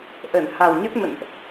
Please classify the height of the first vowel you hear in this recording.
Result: mid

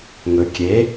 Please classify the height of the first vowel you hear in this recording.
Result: mid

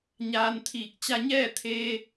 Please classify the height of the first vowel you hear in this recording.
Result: low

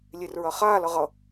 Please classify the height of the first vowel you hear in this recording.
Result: mid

